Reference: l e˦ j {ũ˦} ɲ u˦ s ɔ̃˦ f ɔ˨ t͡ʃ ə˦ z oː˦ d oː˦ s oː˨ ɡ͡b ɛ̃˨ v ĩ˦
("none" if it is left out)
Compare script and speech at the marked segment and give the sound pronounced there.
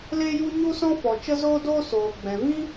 u˦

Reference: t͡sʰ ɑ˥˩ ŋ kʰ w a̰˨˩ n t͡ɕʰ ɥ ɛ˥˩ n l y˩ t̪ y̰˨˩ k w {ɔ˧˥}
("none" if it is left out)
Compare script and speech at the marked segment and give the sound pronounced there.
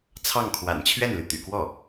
ɔ˥˩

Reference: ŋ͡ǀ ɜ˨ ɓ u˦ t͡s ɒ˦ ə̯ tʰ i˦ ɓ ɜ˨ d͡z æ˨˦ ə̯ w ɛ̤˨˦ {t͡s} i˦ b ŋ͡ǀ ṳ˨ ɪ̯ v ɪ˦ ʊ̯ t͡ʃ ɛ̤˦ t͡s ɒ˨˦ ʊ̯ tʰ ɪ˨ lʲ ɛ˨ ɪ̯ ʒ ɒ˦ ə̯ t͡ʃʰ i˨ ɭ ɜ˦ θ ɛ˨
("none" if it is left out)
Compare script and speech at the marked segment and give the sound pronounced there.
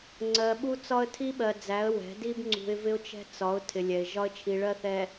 d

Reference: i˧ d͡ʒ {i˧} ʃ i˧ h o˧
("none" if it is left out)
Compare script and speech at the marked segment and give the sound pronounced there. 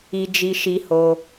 i˧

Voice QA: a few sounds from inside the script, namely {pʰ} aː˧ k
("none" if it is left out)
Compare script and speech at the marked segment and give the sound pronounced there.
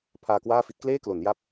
pʰ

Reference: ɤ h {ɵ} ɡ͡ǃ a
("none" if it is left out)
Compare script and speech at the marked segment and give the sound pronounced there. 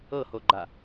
o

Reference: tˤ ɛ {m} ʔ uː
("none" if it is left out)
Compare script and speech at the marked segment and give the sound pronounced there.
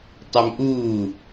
m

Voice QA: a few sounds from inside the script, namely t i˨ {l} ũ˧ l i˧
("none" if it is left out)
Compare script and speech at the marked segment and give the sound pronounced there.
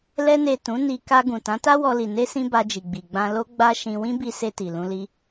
l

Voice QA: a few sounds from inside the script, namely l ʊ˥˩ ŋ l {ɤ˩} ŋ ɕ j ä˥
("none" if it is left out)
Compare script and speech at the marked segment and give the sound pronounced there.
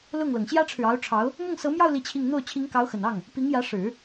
ɤ˩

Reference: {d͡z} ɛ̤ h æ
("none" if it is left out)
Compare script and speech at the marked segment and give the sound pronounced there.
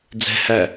d͡z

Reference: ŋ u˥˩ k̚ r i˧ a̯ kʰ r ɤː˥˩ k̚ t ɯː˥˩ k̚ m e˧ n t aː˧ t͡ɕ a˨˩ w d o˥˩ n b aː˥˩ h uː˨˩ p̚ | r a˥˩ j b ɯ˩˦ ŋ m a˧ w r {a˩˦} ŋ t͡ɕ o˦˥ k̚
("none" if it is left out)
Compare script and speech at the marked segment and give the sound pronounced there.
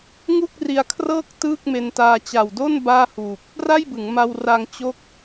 a˧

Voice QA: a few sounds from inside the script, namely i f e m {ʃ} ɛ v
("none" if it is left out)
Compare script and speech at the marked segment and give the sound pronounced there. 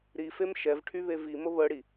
ʃ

